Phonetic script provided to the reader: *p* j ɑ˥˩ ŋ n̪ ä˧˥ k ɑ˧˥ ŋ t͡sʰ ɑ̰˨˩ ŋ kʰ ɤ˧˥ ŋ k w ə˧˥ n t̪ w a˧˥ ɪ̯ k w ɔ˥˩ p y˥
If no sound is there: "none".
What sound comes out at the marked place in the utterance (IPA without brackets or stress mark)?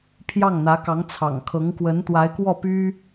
pʰ